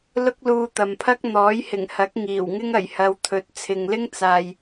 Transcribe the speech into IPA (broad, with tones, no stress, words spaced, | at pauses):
lʊ˥k̚luː˧t̪ɐ˨mpʰɐ˥k̚ n̪ɔː˨˥jhɪ˨˩ŋhɐ˨˥k̚ ŋiː˨˩wŋɪ˥ŋ ɐ˨˩jhɐ˨˧w t̪ʰɵ˨˥t̚ t͡sʰɪ˨ŋlɪ˥ŋt͡saː˨j